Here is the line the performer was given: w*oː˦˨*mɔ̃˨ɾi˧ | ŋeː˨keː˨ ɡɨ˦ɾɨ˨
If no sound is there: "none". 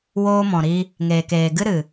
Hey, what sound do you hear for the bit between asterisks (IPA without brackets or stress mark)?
oː˧